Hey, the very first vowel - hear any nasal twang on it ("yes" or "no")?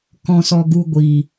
yes